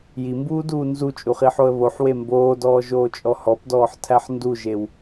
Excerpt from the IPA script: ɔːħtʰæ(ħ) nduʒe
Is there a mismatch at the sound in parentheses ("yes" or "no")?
no